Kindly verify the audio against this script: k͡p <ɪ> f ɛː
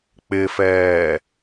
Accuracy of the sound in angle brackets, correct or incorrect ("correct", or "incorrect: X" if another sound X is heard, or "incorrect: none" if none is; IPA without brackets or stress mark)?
correct